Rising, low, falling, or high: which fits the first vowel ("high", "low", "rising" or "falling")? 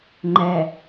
low